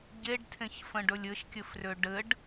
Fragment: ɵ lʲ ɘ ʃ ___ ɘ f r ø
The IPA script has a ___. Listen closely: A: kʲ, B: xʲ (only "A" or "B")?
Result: A